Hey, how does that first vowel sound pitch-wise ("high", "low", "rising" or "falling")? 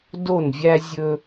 falling